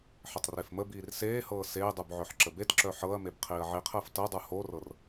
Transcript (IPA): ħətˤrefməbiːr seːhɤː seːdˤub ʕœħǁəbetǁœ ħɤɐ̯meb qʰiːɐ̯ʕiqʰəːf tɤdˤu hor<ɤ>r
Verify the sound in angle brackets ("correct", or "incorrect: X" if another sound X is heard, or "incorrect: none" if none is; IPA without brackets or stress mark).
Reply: correct